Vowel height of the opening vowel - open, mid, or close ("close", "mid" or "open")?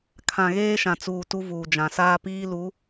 open